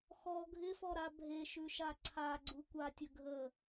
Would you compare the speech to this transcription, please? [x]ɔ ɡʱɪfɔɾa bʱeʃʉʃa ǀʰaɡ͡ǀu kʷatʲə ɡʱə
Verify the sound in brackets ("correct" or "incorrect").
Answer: correct